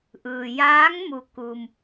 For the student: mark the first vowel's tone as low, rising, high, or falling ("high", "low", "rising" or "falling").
low